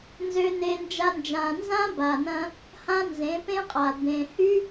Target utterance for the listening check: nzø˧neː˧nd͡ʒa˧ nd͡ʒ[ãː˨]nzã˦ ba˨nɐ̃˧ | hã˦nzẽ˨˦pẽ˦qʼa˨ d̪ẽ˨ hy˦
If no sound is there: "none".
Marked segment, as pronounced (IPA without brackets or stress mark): ãː˨